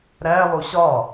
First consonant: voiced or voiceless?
voiced